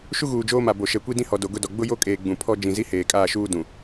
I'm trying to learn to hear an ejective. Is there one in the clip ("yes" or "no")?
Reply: yes